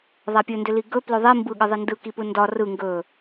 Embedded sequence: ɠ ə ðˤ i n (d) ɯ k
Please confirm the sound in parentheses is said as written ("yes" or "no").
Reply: yes